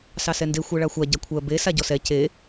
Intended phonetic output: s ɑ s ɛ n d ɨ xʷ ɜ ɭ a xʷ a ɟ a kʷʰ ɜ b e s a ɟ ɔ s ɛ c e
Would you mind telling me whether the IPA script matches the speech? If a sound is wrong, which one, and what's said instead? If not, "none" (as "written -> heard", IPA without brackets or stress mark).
ɨ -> e